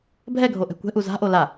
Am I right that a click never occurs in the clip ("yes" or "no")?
yes